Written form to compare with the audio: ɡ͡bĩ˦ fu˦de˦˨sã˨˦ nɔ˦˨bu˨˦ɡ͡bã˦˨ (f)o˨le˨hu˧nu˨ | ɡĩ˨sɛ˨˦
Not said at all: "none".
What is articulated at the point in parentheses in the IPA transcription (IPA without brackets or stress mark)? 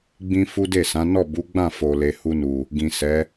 f